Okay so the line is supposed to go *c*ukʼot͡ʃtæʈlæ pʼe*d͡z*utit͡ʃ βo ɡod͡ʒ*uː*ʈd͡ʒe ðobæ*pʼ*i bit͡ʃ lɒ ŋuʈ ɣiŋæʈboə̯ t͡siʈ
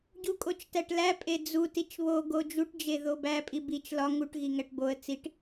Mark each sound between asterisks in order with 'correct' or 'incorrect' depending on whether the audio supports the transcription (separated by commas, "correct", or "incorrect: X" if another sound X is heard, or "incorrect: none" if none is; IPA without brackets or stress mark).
incorrect: ɟ, correct, incorrect: u, correct